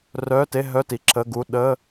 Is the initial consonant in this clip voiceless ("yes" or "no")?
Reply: no